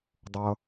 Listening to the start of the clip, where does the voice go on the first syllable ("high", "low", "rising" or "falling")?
low